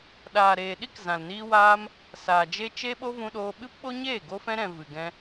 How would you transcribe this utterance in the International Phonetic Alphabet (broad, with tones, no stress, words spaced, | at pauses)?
ɗaː˨ɾeː˨ɗi˦k zã˨lniː˧waː˧m | saː˨d͡ʒe˦ t͡ʃe˧ɓo˧ vũ˧ɗoː˧ ɓɨ˦pɓo˦ɲeː˦˨ ɡo˧fɛ̃˧ɾɛ̃˨ vɨ˨ɡɛ̃˧